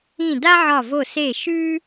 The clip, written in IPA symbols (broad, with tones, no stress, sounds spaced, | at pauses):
ĩ˧˩ d a˦ ʕ ɒ˧˩ v o˧˩ s e˧˩ ʃ ʉ˦